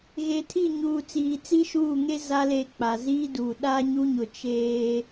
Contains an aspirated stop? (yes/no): yes